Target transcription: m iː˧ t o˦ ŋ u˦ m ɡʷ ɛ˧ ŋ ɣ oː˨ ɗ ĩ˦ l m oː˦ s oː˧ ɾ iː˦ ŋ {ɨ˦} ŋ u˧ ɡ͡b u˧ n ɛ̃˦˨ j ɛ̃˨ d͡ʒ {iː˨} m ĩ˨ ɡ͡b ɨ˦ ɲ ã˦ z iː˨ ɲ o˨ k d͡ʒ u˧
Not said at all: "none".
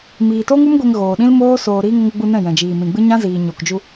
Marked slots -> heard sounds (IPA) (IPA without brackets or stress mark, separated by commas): ə˦, iː˨